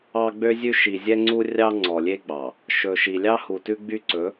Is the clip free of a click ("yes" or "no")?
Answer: no